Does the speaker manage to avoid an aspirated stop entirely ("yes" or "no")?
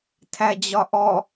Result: no